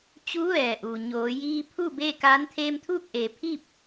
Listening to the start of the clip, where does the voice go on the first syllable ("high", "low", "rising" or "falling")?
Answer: rising